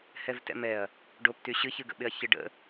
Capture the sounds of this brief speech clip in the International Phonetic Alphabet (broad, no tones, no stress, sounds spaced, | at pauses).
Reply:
h ɛ v t ɛ̰ m ɛ ɐ̯ | ɖ o p t y ɕ ɨ ç ɨ ɡ ə̰ ɓ ɪ ɐ̯ ç ɪ ɖ ə̰